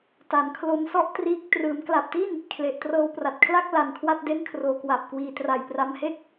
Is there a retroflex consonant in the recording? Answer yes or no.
no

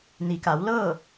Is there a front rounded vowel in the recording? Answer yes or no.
no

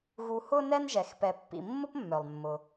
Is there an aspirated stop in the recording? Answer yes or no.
no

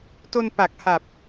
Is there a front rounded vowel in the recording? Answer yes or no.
no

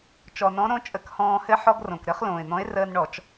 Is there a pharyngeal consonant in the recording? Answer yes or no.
yes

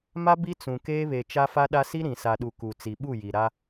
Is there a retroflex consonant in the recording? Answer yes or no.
no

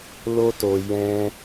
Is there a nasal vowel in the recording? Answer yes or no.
yes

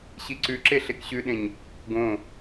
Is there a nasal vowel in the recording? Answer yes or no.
yes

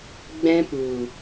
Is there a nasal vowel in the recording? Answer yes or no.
yes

